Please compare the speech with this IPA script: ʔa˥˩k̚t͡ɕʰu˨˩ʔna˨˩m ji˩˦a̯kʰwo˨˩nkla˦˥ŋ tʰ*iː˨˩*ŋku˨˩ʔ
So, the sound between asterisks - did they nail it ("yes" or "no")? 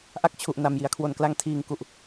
yes